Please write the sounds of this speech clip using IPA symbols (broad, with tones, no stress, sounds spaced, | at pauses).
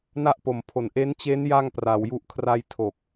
n a˥˩ ʔ p o˨˩ m pʰ o˨˩ n ʔ e˦˥ n t͡ɕ e˦˥ n j a˥˩ ŋ p r a˧ w j u˥˩ ʔ kʰ r a˧ j tʰ o˨˩ k̚